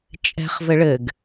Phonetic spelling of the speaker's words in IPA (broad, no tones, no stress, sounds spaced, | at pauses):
t͡ʃʼ ɛ̤ χ v ɘ ɭ ɘ ɡ